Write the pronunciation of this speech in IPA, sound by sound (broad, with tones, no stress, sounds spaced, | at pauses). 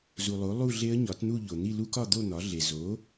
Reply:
z u˩ lˠ o˩˥ lˠ u˥˧ ɮ e˦˥ ə̯ ɲ ɒ˩˥ t n̪ u˥˧ ʎ o˩ n̪ i˥˧ l u˦˥ k ɒ˥˧ d̪ o˥˧ n̪ ɒ˩˥ ɮ e˩ z o˩˥